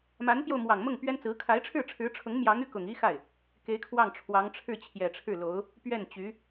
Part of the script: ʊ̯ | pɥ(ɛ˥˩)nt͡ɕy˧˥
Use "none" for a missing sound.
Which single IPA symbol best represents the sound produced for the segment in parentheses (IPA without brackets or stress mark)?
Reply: ɛ˥˩